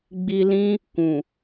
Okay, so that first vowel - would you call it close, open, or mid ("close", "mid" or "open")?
close